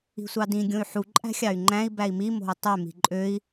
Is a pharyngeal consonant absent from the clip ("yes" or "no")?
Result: no